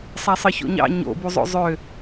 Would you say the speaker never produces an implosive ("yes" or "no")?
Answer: yes